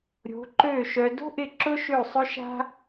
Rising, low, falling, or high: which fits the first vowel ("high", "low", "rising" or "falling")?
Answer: rising